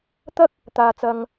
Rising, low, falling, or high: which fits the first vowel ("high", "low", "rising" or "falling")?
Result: high